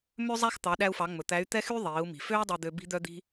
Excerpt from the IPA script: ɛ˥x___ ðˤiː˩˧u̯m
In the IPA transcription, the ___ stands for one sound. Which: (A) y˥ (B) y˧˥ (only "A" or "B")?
A